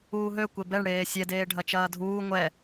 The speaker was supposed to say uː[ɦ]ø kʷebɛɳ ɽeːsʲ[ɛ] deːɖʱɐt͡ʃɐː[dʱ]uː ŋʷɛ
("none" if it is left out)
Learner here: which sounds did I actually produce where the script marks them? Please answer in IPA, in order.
ɦ, ɛ, dʱ

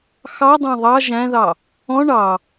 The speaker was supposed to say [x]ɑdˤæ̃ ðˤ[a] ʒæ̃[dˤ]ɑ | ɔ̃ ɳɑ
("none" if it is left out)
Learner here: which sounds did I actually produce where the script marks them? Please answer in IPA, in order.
x, ɑ, ð

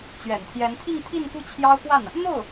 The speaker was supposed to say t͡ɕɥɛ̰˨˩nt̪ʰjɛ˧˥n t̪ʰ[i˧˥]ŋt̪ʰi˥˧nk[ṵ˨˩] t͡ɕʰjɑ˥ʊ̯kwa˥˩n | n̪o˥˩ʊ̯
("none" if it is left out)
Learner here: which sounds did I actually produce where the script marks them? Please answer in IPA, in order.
i˥˧, u˥˩

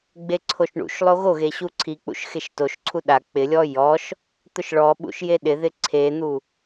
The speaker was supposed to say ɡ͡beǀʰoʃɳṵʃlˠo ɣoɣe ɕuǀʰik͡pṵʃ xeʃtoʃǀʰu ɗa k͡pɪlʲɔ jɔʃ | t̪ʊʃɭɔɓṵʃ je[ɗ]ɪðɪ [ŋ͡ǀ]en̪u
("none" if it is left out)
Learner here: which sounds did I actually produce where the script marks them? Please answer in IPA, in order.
ɗ, ǀʰ

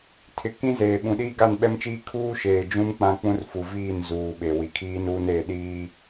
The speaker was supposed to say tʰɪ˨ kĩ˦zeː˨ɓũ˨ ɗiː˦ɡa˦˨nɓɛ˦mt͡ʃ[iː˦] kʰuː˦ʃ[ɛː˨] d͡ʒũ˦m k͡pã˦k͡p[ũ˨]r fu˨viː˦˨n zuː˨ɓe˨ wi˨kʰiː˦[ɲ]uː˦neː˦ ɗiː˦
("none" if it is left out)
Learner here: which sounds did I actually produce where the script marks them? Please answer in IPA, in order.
iː˦, eː˨, ũ˦, n

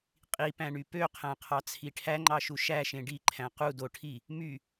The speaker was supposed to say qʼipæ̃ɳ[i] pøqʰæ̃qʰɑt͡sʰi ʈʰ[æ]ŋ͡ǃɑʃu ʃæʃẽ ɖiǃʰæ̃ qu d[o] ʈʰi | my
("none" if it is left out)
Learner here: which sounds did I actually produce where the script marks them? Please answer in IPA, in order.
y, æ, o

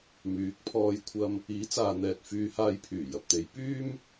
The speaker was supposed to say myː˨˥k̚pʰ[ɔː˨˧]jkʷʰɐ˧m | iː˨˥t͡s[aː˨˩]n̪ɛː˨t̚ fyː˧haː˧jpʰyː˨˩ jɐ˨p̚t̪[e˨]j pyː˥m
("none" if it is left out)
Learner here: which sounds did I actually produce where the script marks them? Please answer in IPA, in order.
ɔː˧, aː˨, e˨˧

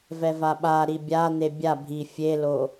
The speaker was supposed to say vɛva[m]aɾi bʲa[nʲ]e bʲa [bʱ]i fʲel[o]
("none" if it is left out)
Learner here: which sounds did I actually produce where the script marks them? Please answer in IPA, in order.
ɓ, n̪, bʱ, o

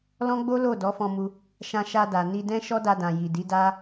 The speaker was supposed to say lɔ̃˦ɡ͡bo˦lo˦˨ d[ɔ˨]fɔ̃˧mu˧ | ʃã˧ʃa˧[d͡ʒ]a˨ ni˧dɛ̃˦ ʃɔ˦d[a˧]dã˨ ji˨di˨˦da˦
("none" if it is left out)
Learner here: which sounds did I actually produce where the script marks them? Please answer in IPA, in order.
ɔ˨˦, d, a˧

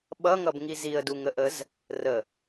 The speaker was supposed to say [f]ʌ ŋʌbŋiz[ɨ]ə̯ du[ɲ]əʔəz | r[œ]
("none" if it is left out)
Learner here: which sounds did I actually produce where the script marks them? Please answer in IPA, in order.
ɓ, i, ŋ, ə

